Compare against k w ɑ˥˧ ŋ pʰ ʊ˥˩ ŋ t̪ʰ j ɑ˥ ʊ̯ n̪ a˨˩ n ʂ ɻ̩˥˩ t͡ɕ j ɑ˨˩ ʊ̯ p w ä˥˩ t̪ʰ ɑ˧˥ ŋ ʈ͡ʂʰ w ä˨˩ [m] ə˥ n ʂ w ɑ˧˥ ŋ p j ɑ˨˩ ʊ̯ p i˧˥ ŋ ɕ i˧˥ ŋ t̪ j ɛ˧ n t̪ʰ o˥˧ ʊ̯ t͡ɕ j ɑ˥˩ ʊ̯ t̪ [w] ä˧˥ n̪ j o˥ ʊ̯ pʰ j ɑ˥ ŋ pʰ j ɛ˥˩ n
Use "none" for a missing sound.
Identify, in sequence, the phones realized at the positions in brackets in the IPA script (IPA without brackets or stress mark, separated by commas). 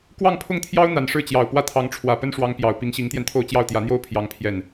p, j